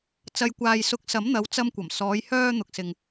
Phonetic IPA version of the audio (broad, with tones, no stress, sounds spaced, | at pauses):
t͡s ɐ˨ j kʷ aː˨ j s ʊ˨˥ k̚ s ɐ˨˥ m n̪ ɐ˨˧ w t͡s ɐ˧ m kʷ ɐ˨˩ m s ɔː˨˧ j h œː˧ n̪ ʊ˨ k̚ s ɪ˨ ŋ